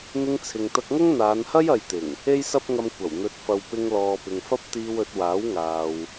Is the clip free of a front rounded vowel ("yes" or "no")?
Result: yes